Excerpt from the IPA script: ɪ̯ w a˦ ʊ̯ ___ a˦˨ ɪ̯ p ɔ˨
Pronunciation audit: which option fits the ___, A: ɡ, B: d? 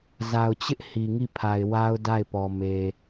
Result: B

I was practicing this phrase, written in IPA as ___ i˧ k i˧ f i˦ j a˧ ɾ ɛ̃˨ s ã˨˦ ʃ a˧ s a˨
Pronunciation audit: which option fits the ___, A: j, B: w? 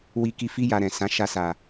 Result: B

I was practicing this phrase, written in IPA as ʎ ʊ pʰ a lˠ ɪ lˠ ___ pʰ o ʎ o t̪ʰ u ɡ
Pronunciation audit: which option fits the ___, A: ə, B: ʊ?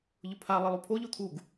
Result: B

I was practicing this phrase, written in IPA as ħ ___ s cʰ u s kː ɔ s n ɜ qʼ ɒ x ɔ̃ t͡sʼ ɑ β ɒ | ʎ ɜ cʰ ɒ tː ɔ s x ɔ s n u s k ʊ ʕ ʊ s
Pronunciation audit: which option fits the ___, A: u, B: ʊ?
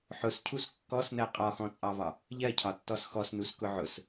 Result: B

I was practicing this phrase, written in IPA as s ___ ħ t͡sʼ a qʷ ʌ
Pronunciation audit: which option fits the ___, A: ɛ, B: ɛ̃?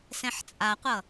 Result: B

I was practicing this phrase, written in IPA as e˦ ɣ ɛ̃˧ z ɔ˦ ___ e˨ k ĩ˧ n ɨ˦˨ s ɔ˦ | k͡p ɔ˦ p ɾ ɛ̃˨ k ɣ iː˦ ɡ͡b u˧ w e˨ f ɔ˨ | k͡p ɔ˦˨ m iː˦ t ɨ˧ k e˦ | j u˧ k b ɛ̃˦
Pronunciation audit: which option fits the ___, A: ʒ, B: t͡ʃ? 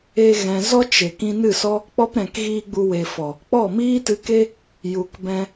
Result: B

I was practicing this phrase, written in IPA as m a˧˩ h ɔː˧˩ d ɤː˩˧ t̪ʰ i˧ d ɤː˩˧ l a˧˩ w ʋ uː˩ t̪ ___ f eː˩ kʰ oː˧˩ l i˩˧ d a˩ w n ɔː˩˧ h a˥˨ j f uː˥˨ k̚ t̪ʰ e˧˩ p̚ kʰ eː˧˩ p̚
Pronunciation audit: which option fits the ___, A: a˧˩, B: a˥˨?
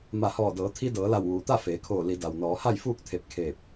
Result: B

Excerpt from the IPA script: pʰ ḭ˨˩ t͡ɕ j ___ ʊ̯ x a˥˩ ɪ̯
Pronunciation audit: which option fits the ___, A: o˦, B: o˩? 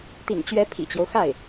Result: A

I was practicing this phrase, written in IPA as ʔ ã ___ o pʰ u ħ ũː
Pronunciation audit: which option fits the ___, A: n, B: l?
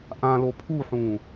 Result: B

